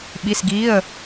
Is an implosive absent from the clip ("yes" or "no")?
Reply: no